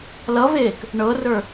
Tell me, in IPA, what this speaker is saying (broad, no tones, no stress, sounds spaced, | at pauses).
l ʌ v eː k | ɳ ɤ r ə˞